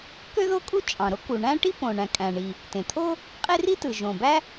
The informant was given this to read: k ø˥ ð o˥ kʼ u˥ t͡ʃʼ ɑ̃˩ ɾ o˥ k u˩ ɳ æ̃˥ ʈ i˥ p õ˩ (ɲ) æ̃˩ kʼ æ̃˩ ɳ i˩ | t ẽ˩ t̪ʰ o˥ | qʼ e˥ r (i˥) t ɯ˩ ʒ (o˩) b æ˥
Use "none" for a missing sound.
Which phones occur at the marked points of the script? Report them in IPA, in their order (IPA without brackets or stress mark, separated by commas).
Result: ɳ, i˥, õ˩